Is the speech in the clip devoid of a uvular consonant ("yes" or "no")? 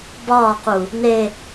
no